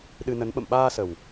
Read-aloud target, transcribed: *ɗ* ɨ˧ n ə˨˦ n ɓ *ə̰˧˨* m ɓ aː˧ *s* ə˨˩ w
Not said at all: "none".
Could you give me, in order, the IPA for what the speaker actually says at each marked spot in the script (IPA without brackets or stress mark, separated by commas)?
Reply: ɗ, ə̰˧˨, s